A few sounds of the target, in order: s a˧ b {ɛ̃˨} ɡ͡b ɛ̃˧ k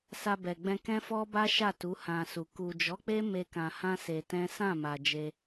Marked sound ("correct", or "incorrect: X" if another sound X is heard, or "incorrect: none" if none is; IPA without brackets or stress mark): incorrect: ɛ˨